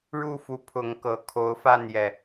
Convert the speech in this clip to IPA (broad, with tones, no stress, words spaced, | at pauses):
ɻu˥˨fu˨˦ pʰʊ˨˦ŋkɤ˨˩ kʰo˨˦ʊ̯fa˥˨njɛ˨˩